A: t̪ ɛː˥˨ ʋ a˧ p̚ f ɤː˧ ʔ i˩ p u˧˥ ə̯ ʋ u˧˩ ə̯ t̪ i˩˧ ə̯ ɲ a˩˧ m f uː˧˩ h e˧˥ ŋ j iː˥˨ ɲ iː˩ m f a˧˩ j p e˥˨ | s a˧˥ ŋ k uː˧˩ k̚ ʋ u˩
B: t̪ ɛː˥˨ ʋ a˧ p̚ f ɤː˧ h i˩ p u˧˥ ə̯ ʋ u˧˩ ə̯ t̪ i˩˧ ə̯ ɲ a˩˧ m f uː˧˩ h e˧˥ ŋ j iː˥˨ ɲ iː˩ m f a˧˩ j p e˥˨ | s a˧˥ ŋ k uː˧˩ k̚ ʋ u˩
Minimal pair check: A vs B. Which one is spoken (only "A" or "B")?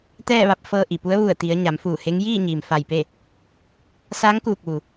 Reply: A